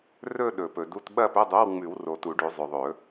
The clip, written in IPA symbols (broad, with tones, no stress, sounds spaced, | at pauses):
r ɵ˥˧ ɗ ɵ˨˩˦ p ɵ˨ d u˧˥˧ t ɓ ɐ˥˧ p ɵ˧˥˧ dˤ o˧˥˧ w ŋ͡m ʉ˨˩˦ w r o˨ t u˨˩˦ ɖ ʉ˨˩˦ zˤ ɵ˨ ðˤ ɵ˨˩˦